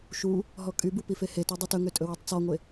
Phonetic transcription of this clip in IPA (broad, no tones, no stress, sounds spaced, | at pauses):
ʃ u | ɦ ɔ kʼ y b u p i f e h e t e dˤ ɛ t ɵ ŋ ø tʼ ɵ w y tˤ t͡s ɔ ŋʷ e